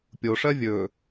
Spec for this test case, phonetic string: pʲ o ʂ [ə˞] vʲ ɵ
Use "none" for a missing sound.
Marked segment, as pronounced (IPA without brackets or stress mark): ɜ